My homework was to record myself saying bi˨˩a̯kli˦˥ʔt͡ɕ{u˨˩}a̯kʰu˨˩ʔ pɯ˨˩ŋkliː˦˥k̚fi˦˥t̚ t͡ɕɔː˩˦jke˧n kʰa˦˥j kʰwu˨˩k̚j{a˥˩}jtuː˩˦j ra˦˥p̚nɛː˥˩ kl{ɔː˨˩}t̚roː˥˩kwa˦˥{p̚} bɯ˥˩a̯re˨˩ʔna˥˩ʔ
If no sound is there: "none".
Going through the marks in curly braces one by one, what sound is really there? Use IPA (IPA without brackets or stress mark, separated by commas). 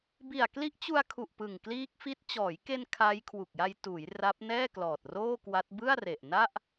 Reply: u˧, a˧, ɔː˨˩, t̚